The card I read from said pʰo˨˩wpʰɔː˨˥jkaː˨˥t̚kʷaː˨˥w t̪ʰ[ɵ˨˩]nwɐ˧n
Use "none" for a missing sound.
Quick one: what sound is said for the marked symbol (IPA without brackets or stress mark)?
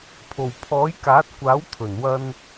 ɵ˨˩